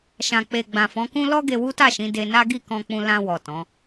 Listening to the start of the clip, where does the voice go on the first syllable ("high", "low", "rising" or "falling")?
low